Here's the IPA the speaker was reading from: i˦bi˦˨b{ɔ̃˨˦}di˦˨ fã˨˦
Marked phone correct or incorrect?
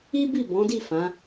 correct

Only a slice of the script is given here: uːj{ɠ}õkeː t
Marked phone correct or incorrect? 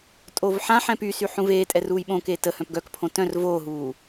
incorrect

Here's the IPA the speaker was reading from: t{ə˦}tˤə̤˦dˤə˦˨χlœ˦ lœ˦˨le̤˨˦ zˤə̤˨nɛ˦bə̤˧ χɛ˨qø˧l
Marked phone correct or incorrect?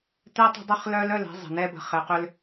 incorrect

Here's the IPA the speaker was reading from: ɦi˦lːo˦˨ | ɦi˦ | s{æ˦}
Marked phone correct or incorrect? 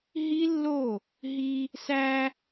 correct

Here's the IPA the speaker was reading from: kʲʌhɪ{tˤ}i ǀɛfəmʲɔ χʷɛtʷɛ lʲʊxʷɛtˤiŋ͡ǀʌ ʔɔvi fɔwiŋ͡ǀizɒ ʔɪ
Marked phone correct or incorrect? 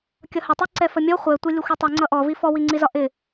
correct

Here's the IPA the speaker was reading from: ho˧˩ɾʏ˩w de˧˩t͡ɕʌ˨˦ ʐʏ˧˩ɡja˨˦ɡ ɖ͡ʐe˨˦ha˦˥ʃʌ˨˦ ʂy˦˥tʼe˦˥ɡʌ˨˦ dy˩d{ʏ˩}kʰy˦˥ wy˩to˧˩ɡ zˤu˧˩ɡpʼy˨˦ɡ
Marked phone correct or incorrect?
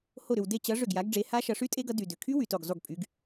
correct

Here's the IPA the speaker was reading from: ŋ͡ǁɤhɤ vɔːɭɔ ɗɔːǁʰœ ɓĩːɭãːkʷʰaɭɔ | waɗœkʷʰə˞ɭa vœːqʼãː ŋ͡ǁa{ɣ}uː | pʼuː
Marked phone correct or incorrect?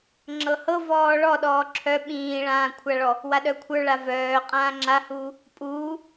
incorrect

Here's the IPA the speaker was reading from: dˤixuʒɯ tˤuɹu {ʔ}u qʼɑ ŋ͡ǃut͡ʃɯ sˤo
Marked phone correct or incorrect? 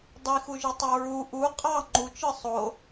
correct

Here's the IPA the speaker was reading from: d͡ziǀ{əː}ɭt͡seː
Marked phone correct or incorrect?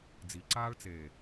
incorrect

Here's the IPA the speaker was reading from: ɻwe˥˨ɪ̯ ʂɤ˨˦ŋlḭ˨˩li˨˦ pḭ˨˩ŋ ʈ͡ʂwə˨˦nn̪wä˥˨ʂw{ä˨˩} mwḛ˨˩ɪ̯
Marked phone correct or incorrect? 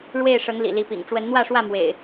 incorrect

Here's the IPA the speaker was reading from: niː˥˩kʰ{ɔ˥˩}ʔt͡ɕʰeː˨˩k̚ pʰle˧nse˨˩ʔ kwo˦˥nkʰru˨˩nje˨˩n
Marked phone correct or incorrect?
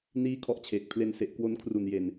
correct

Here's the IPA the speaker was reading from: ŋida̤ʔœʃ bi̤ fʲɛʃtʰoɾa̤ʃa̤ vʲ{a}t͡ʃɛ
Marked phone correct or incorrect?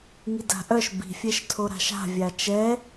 correct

